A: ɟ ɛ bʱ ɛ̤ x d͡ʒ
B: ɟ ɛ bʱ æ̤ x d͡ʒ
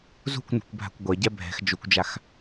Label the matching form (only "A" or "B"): A